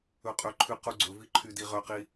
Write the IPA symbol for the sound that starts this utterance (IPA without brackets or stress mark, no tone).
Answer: ɵ